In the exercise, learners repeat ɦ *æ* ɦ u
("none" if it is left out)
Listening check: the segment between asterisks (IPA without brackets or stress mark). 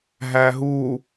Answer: æ